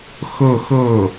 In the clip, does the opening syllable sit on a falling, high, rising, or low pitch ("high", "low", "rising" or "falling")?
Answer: falling